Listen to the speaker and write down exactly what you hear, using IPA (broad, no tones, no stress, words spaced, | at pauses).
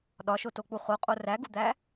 ɗɒʃotok͡pu χoqʼo ræɡud̪æ